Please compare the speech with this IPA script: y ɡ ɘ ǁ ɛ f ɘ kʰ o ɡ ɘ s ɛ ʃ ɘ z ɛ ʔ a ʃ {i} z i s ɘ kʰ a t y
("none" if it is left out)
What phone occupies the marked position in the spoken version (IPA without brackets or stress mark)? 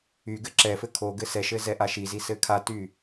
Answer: i